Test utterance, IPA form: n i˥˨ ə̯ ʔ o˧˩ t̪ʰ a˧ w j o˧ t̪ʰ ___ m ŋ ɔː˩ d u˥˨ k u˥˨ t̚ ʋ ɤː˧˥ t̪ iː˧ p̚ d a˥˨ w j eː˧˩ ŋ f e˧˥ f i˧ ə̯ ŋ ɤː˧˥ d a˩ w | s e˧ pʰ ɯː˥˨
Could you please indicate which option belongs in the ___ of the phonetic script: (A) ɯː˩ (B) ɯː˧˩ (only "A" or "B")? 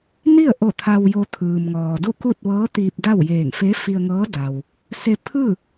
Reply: A